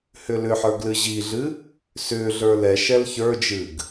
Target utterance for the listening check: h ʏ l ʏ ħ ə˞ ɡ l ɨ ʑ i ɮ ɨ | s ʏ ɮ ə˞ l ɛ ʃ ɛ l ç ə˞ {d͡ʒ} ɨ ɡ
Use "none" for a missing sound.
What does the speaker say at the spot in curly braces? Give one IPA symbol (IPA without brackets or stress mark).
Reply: d͡ʒ